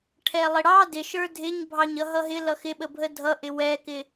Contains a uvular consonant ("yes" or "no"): no